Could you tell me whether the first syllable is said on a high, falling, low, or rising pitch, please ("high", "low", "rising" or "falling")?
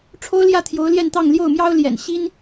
high